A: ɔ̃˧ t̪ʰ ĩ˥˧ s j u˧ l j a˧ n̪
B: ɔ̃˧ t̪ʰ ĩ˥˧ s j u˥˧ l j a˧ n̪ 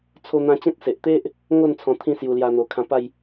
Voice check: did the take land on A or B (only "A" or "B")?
A